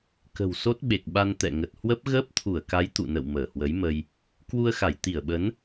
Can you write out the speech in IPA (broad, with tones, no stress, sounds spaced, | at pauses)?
k ə̤˨˩ w s o˦˥ t̚ ɓ e˨˩ k̚ ɓ a˧ n t̪ ɛ̰˧˨ ŋ ə˨˩ t̚ h w ə˦˥ p̚ ɣ əː˦˥ p̚ t̪ʰ u˧˩ ə̯ k a˨˦ j t̪ ṵ˧˨ n ə̰˧˨ w m əː˧˩ h w ə˨˦ j m ə˧ j | k w u˧ ə̯ x a˧˩ j t̪ i˧˩ ə̯ ɓ ə˨˦ n